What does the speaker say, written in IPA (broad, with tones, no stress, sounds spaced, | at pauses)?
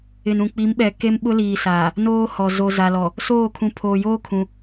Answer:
ɪ˨ n ũ˨ k͡p i˨˦ m ɓ ɛ˨ k e˦ m ɓ ʊ˦ l iː˨ s aː˨ | n oː˦ h ɔ˨ z o˨ z a˨ l ɔ˨ | s oː˦˨ kʰ ũ˨ pʰ oː˨ j oː˦ kʰ ũ˨